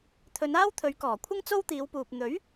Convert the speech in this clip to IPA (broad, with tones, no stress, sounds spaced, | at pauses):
t̪ʰ ɵ˨˧ n aː˥ w t̪ʰ ɵ˨˧ ɥ k ɔː˨˩ kʷʰ ɪ˥ ŋ t͡s o˥ w t̪ iː˨˧ w p uː˨ p̚ n̪ ɵ˨˥ ɥ